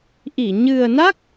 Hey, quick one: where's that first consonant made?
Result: throat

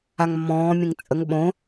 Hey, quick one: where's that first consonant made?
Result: velum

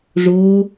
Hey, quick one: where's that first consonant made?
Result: retroflex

